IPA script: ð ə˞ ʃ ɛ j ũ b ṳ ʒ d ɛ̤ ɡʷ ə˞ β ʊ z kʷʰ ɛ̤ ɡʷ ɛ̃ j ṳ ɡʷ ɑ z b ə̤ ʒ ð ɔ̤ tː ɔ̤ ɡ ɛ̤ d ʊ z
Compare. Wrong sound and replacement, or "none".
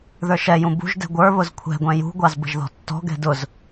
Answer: none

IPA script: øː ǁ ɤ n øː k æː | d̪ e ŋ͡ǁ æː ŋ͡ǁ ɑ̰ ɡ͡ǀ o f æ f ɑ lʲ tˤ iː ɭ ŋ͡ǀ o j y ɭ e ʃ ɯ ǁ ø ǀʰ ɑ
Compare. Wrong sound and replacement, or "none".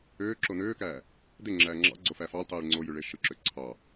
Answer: ɤ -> o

